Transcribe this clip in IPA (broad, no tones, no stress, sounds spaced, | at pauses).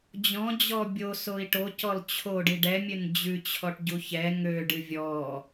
d͡ʑ ɔ̃ d͡ʑ ɔ bʲ o s o i̯ ʈ o c ɔ l t͡ɕʰ o ɖ i ɖ ɛ mʲ ø n d͡ʑ ʉ t͡ɕʰ ɔ ʈ ɟ u ç ɛ ŋ ø ɖ ɨ vʲ ɔ